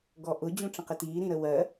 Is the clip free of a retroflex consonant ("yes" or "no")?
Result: no